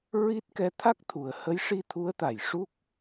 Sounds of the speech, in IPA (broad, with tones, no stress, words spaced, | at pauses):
ɹi˦˥t̚ kɛ˧˥t̪ʰa˦˥k̚t̪ʰu˨˩ə̯ hə˧˥jʂi˧t̪ʰu˧˥ə̯ t̪a˨˩jʂu˦˥k̚